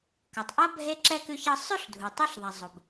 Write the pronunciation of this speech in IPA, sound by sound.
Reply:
k ʌ˩ tˤ ʔ ʌ˥ bʱ e˥ ǁ ɛ˥ k ʉ˦ ç ʌ˦ sˤ ʉ˦ ɬ dʱ u˩ tˤ u˥ ɬ ðˤ a˩ zˤ o˩ b

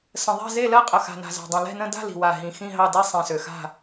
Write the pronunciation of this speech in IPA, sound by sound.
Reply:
s ə̃˨˩ ðˤ ɛ̤˥˧ z e˥˧ l ɜ˥˧ qʼ ə˨˩ x a̤˨˩ n a̤˨˩ z a̤˨˩ dˤ ĩ˨˩ l ɛ̤˥˧ n ə̃˥˧ d a̤˥˧ l i̤˨˩ w a˨˩ ɦ ĩ˨˩ x ĩ˥˧ ɦ ɑ˥˧ d i˥˧ sˤ ĩ˨˩ s ø˨˩ x a̤˥˧

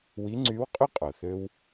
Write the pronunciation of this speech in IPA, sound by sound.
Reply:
w i˧˥ ŋ͡ǀ y˧˥ w qʼ y˥ qʼ o˩ θ ø˧ w

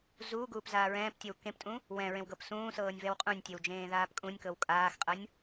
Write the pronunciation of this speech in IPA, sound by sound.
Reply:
z uː ɡ uː p z aː ɹ ɛ̃ː p tʲ e w k ẽ p tʼ ũ | w ɛ̃ ɹ ẽ w ɡ ɤ p s ũː s ɤː nʲ v ɛ w qʼ ũ nʲ tʲ e w d͡ʒ ẽː ð aː p kʼ ũ nʲ k ɤ w kʼ aː x qʼ ɤ nʲ

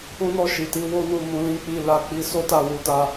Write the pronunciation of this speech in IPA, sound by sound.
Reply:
ũ˦ n ɔ˦˨ ʃ i˨ t i˧ w o˦ n u˦˨ m ũ˧ l ĩ˦ k͡p i˦˨ l a˧ k͡p i˧ s o˦ t a˦˨ w u˧ t a˧

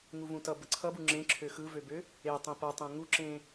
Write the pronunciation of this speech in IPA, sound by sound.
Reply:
ŋ u v ũ t ʌ b ə ǀʰ ʌ b u ŋ͡ǁ ẽ ǁʰ ø x ɯ v ø b ø | e tˤ ẽ p ʌ tˤ ẽ ŋ u ǁ ẽ

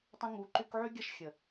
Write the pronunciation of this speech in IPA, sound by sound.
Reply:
tˤ ə̃˧ ŋ u˨˦ ǃ y˧ k ʕ y˦ ɡʲ ɐ˦ ʃ xʲ ə˨

